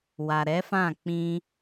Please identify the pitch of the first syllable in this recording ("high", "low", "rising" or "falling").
low